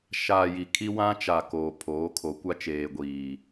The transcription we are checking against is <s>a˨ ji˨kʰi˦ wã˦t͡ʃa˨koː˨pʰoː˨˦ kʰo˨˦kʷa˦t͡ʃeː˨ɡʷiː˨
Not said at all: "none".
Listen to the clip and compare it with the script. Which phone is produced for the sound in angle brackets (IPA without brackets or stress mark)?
ʃ